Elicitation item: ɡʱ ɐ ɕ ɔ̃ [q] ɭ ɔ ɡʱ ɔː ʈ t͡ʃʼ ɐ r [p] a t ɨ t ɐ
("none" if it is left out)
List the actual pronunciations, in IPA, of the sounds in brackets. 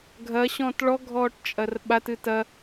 t, ɓ

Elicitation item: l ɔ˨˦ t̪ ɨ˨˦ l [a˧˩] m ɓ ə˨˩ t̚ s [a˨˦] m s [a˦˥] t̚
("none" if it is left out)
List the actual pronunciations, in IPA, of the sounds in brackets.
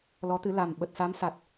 a˨˩, a˨˦, a˨˩

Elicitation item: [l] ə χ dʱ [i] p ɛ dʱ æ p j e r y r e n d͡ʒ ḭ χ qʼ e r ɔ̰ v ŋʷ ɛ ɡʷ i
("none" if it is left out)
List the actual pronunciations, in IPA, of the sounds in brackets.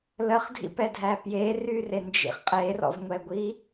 l, ḭ

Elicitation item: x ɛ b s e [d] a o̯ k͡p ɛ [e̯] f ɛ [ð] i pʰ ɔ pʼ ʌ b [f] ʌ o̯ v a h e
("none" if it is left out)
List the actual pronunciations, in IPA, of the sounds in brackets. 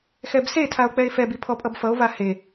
tʰ, e̯, b, f

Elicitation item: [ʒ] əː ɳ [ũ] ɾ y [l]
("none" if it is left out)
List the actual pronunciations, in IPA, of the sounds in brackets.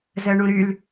z, ũ, l

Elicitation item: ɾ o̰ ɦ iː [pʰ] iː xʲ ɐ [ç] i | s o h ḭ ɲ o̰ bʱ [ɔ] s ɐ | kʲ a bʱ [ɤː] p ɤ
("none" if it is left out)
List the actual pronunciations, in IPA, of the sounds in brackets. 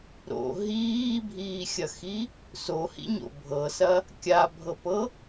bʱ, x, ɤ, ɤ

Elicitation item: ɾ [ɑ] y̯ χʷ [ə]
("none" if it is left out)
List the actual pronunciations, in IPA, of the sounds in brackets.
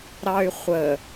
ɑ, ə

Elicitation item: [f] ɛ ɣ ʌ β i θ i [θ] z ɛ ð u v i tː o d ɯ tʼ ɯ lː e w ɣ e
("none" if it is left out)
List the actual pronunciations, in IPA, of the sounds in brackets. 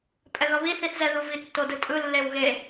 pʼ, θ

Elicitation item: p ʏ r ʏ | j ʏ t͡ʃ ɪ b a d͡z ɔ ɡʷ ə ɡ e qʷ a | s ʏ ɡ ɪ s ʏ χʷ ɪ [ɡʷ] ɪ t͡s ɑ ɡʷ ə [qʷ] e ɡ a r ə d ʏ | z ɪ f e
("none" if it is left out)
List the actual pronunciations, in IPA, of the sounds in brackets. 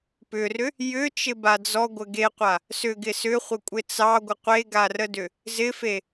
kʷʼ, qʷ

